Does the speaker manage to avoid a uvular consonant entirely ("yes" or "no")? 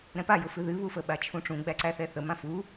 yes